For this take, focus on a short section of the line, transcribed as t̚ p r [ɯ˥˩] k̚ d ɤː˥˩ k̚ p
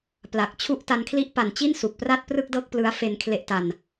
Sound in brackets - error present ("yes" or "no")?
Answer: no